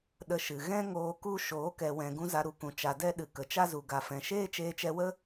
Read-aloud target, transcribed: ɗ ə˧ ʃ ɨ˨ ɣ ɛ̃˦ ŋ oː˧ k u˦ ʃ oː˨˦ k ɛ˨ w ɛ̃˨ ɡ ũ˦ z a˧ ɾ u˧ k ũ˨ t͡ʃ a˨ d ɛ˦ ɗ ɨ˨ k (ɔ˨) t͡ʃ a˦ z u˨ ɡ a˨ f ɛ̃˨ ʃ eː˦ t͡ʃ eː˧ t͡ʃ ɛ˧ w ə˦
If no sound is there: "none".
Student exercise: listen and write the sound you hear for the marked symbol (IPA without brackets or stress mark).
ə˨